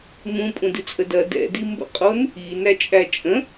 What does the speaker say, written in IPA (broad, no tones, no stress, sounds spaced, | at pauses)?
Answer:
m ũ pʼ ũ d ɨ t͡sʼ ə d ɐ d ɛ̰ d i m b ə̰ qʼ o n | i n æ t͡ʃʼ æ t͡ʃʼ ə̃